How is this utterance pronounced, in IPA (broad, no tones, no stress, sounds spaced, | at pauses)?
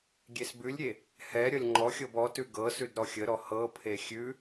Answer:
ɡʲ e s b ʉ lʲ ɾʲ e | h ɛ ɾʲ ʌ lʲ ŋ͡ǃ ɔ xʲ ɤ b ɔ t ʉ ɡ ɤ s ʉ d ɾ ɔ xʲ ə ɾ ɔ h ɤ pʰ e xʲ ʉ